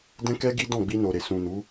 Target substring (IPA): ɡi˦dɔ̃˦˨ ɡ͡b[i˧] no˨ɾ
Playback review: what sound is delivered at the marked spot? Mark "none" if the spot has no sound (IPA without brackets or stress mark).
i˧